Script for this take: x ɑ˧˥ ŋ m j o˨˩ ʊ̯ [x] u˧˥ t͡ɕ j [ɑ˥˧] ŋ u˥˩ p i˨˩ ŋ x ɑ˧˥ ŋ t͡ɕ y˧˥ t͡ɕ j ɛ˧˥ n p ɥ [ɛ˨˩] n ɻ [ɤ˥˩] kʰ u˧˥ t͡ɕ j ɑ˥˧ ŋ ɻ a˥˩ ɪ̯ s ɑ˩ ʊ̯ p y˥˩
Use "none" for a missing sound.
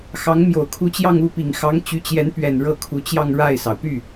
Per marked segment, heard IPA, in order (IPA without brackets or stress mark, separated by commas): kʰ, ɑ˥˧, ɛ˨˩, ɤ˥˩